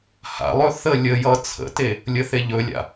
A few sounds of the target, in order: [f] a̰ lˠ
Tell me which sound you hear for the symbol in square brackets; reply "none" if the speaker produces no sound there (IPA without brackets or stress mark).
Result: h